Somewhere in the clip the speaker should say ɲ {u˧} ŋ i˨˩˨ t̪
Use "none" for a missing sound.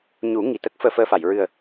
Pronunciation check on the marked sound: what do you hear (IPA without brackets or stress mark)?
u˨˩˦